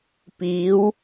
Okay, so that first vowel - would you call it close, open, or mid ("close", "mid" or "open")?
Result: close